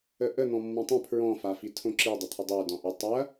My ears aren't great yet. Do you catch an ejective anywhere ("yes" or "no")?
no